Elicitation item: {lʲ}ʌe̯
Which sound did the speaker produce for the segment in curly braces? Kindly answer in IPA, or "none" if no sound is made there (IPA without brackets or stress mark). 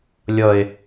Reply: lʲ